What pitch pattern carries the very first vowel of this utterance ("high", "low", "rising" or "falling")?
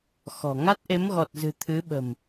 low